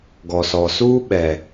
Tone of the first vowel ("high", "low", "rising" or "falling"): low